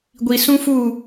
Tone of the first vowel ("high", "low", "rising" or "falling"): low